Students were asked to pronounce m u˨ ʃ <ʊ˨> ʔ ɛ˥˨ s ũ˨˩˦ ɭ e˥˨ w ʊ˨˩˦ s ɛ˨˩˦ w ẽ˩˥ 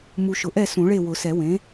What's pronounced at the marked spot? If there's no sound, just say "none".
ʊ˨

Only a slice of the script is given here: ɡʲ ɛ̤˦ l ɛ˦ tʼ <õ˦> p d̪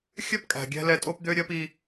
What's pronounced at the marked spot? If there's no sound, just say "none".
o˦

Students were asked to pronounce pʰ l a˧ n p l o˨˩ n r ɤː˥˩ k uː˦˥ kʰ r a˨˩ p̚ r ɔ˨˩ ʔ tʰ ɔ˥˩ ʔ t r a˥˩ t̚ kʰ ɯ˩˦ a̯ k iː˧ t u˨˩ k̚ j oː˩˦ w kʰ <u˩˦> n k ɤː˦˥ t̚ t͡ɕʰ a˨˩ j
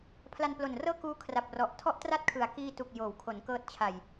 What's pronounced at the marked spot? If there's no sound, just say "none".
o˩˦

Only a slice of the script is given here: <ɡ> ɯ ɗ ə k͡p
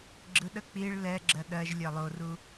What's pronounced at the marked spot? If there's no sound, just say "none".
ɡ͡ǁ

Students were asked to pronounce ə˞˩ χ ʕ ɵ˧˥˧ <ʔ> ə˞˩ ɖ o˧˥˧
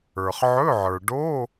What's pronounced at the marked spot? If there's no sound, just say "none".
ʕ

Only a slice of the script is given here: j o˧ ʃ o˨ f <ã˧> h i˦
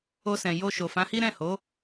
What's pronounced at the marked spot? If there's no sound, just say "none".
ã˨˦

